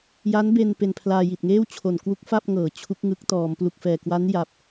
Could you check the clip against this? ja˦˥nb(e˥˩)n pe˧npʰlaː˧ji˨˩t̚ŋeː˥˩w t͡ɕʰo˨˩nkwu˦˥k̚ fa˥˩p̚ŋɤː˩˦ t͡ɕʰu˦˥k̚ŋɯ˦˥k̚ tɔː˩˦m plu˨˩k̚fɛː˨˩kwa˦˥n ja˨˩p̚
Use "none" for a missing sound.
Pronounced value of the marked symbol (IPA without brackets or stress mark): e˧